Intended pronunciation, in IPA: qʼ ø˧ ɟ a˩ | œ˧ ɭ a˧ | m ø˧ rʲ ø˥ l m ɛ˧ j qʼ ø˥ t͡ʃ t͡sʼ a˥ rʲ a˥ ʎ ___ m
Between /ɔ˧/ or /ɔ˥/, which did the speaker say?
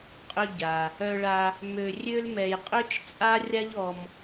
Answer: ɔ˧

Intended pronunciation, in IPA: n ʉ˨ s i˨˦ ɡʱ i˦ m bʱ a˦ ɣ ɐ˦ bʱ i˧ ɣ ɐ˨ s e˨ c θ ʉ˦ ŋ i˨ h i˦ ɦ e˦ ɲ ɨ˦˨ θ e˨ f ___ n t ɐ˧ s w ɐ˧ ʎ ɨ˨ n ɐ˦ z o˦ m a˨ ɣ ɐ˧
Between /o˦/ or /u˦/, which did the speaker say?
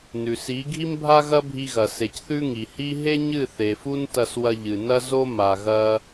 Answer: u˦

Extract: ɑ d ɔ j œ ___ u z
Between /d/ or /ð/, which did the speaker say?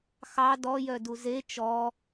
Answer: d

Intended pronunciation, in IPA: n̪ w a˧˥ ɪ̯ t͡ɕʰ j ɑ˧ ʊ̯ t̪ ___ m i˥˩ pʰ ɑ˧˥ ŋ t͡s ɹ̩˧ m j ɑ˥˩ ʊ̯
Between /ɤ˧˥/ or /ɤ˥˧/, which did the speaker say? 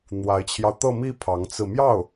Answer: ɤ˥˧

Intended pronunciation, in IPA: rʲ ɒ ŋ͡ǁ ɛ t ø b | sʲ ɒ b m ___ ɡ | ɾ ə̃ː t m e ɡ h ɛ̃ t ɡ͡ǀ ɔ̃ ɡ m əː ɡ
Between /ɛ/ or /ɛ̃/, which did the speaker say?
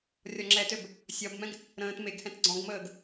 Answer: ɛ̃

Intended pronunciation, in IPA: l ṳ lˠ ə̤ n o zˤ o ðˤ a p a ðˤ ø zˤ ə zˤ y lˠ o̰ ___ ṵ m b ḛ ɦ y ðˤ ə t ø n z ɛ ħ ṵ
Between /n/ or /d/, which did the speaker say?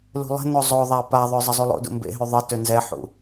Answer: d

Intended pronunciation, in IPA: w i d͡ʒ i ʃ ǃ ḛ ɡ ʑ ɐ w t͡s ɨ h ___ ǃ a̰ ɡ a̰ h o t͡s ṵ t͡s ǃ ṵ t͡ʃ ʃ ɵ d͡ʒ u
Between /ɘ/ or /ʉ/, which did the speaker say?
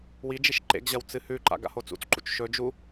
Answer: ʉ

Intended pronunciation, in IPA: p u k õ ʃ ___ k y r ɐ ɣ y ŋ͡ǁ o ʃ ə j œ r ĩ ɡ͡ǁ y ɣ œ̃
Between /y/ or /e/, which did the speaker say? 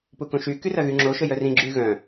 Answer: y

